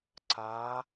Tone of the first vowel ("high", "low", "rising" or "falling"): rising